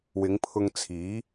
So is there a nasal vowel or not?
no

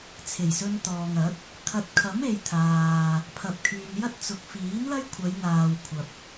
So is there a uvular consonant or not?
no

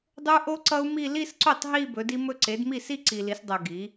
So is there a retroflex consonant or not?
no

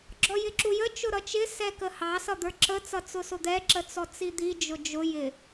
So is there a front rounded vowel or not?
no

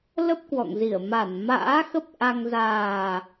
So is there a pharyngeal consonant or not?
no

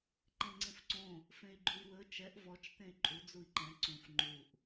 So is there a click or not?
yes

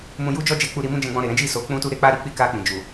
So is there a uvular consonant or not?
no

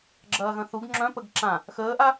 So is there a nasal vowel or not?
yes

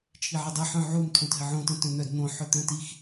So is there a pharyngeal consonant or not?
yes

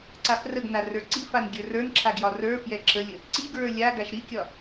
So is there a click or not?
yes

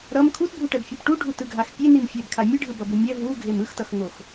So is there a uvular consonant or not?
no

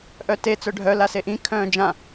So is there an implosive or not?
no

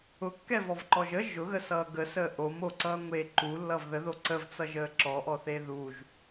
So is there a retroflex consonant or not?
no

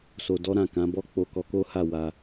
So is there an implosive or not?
no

